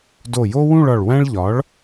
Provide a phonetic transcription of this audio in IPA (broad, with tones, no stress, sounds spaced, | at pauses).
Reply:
d o˧˩ j o˥ w ũ˥˧ ɭ ɒ˧˩ ɭ w æ̃˥ ɭ ʎ ɒ˩˥ ɭ